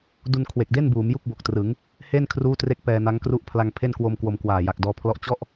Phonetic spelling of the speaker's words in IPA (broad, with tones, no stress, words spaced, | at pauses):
du˧nkʰwe˨˩k̚de˥˩n buː˩˦mju˥˩k̚ bo˨˩k̚trɯ˩˦ŋ | he˥˩n kʰruː˥˩tre˥˩k̚pɛː˧na˦˥ŋ kru˦˥ʔpʰla˧ŋpʰe˥˩nkwo˧m kwo˧mkwaː˨˩ja˨˩k̚ dɔː˧pʰlɔ˥˩ʔ t͡ɕɔ˥˩ʔ